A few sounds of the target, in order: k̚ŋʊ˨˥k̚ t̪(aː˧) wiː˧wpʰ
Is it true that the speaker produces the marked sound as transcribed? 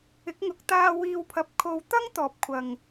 yes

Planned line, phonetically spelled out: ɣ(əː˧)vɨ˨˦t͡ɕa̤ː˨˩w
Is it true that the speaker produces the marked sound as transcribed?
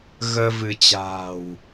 yes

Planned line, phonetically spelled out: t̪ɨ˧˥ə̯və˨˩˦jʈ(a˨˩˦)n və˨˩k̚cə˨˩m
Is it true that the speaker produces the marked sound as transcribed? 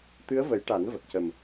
yes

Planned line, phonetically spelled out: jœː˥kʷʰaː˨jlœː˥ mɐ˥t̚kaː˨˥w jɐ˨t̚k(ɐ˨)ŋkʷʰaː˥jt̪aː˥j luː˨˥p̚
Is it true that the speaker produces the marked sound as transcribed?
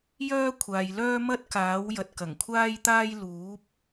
no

